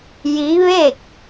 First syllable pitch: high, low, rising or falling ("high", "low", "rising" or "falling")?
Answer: rising